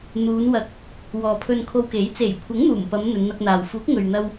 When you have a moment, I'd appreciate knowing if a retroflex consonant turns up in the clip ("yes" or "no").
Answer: no